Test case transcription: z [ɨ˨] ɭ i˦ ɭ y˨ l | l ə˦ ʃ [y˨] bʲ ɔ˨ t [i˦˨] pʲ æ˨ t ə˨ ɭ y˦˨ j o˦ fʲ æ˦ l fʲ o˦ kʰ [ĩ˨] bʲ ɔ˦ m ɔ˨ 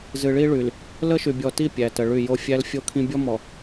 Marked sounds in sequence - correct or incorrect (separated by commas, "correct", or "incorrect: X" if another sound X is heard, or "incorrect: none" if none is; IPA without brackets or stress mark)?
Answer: correct, correct, correct, incorrect: ĩ˦